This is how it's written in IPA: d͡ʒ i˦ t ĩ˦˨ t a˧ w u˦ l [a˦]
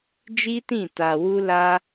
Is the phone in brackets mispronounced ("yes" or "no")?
no